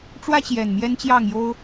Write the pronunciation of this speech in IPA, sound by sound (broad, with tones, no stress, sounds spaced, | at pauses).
ʈ͡ʂ w ä˦ t͡ɕ j ɛ˨˩ n m j ɛ˦ n t͡ɕ j ɑ˥˨ ŋ j o˦ ʊ̯